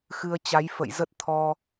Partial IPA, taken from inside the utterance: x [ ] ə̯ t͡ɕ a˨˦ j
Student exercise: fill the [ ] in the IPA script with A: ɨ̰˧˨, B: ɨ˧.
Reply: B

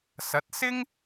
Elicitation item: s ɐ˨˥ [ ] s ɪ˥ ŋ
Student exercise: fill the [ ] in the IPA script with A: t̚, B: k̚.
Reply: A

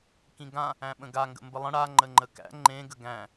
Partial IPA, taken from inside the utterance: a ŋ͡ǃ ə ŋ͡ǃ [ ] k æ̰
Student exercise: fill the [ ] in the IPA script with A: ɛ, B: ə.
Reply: B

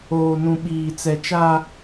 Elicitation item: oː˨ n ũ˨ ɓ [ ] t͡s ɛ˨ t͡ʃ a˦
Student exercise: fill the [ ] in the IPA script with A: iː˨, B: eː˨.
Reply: A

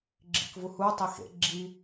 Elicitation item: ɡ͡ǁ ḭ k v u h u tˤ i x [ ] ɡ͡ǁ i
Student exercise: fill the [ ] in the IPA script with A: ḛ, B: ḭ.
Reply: A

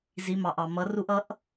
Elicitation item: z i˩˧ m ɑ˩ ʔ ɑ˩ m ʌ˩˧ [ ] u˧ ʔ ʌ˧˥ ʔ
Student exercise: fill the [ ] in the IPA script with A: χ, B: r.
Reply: B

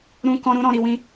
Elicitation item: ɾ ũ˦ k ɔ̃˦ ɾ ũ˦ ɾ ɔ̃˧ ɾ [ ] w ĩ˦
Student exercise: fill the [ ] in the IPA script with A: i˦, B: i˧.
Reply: B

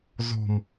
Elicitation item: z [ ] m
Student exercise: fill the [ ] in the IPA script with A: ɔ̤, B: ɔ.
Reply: A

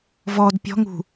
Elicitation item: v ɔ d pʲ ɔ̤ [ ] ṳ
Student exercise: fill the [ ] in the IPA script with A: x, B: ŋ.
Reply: B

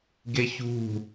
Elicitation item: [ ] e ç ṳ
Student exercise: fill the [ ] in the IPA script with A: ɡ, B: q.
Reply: A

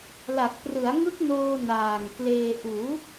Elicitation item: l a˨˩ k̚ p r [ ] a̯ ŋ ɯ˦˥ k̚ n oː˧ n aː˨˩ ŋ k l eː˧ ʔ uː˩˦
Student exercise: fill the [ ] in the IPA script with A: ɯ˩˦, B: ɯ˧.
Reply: A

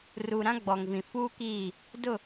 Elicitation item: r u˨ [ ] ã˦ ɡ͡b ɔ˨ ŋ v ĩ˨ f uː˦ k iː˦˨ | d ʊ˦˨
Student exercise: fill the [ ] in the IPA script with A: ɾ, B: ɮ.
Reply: A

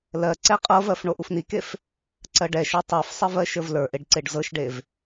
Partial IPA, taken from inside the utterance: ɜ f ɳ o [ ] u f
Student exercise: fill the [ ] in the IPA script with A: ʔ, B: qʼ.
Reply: A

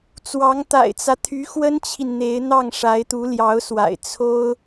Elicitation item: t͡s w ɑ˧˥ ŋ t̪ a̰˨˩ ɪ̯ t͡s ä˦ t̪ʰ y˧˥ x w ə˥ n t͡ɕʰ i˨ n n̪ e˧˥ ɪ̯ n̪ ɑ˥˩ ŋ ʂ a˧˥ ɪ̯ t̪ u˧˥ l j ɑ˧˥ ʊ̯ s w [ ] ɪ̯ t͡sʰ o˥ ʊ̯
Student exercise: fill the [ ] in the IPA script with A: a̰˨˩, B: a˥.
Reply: A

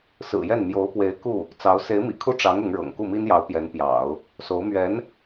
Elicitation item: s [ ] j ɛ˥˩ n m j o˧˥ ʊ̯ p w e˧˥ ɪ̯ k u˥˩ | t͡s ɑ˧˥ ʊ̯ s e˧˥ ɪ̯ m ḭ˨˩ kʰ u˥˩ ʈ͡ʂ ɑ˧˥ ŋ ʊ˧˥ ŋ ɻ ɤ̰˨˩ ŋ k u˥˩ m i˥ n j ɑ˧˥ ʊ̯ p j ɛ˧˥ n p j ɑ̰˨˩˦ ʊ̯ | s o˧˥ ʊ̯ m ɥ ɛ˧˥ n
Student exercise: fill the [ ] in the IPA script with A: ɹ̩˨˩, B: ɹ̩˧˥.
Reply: A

